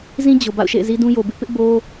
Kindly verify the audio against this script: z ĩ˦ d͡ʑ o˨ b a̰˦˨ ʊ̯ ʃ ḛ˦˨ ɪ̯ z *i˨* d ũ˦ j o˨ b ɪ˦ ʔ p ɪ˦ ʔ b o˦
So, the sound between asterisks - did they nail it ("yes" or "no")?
no